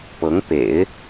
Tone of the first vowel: rising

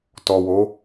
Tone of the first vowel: low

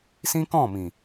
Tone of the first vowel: high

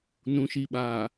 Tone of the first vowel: low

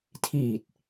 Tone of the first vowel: low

